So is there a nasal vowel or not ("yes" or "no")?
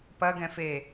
yes